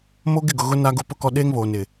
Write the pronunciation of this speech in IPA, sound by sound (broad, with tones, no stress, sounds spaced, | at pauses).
m o˦ ɡ ɪ˦˨ ɡ ʊ˨ ɣ ʊ˦ n a˦ ɡ ʊ˦ p ʊ˦ k ɔ˦ ɗ eː˦ ŋ β oː˨ n ɪ˨